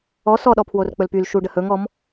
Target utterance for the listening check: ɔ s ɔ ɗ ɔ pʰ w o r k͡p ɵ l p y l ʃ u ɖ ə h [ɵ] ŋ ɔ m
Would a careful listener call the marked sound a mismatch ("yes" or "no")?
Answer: no